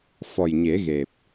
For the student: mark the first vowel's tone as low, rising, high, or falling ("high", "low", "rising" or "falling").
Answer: low